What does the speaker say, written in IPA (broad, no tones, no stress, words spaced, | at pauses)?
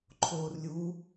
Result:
ǃʰoːrlʲu